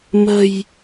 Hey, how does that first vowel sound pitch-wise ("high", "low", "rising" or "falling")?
low